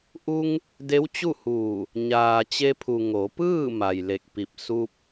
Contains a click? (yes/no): no